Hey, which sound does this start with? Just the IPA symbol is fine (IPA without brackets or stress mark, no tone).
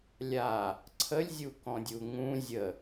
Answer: lʲ